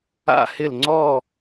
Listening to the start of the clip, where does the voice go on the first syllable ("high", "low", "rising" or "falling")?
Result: falling